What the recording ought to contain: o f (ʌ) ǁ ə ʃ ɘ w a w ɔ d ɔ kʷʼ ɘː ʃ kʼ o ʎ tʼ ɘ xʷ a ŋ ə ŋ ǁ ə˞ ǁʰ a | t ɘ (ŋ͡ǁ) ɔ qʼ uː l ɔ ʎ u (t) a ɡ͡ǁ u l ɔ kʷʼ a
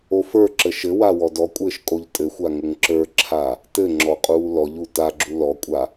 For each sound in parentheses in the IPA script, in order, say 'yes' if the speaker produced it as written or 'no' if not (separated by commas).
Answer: no, yes, yes